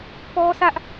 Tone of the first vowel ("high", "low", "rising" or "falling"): high